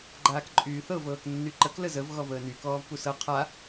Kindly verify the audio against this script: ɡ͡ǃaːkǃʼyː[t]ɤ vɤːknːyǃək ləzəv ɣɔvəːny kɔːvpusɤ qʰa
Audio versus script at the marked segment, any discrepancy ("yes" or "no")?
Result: yes